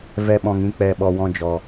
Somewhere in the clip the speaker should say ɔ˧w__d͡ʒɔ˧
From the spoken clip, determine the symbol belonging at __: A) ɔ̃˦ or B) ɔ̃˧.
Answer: A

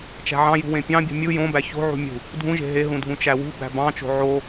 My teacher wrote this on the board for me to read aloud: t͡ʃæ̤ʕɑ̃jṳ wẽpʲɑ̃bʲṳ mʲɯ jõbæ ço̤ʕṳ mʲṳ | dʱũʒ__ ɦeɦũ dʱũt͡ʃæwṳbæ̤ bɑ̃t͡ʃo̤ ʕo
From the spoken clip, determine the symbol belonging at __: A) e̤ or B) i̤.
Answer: A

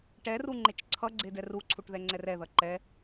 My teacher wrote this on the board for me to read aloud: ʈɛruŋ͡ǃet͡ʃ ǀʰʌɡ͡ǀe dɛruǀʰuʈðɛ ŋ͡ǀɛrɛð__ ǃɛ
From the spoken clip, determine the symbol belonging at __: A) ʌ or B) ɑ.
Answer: A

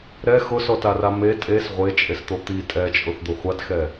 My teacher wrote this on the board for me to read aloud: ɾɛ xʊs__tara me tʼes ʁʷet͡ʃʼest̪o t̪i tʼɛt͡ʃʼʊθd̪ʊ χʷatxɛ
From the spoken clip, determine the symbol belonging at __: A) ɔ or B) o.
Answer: A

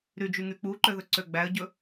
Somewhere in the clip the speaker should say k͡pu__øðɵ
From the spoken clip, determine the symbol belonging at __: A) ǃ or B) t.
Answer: A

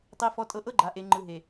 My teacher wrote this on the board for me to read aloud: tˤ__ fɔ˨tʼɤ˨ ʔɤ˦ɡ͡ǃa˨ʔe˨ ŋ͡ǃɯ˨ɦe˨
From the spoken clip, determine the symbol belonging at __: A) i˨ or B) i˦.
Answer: A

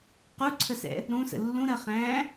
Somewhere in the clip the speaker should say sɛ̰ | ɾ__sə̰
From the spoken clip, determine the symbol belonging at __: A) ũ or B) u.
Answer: A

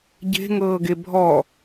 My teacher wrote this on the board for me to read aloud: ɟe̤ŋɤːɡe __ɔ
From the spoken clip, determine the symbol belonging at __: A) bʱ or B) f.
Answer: A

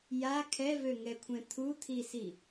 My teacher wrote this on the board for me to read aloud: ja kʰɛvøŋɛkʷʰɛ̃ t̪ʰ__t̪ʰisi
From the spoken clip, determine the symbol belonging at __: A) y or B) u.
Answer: B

